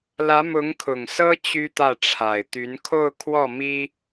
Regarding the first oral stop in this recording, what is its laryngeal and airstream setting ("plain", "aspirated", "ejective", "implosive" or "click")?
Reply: aspirated